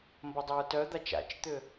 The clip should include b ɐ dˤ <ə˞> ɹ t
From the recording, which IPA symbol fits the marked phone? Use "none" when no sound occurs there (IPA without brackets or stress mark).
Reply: ɐ